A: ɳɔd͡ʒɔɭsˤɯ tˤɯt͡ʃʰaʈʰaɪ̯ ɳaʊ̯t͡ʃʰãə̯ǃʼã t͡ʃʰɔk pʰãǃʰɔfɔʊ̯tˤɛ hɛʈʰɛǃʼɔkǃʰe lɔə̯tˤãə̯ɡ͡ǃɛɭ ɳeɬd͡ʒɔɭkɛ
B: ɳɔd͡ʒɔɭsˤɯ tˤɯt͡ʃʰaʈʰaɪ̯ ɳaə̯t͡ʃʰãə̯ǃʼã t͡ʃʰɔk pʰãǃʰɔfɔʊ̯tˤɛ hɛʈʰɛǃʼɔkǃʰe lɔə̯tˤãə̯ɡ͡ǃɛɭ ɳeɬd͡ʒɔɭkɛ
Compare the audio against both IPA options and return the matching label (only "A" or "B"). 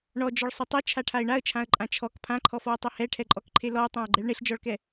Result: B